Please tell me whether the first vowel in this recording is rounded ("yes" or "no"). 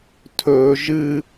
yes